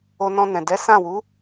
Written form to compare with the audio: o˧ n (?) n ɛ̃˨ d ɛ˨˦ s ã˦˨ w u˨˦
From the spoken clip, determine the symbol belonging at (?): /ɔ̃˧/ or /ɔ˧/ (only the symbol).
ɔ̃˧